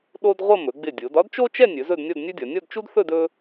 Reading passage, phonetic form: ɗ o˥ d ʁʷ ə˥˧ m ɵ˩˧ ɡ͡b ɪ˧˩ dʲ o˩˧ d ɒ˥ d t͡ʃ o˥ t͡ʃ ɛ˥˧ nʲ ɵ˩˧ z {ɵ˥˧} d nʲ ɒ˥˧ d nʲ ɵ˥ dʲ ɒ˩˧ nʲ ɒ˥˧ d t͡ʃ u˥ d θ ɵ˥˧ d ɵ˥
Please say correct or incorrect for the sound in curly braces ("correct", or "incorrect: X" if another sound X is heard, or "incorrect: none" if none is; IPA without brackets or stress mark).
correct